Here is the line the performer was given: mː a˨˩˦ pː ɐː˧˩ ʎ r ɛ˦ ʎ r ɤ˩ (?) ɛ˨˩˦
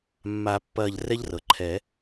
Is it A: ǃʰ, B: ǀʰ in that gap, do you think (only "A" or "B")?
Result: A